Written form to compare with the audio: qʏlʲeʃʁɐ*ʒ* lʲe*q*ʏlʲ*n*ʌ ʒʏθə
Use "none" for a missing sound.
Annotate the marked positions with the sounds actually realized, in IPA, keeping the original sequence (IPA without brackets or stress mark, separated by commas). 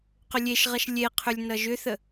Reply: ʃ, qʰ, n